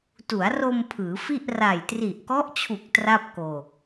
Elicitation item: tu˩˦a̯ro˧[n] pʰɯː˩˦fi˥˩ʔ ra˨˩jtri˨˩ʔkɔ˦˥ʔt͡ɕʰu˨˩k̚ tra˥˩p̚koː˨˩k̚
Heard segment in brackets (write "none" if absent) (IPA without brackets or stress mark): m